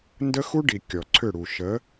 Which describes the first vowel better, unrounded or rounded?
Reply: unrounded